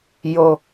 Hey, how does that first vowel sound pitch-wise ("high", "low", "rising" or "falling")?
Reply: low